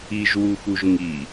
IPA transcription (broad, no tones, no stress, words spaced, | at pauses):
iʒwuxuʒ ŋi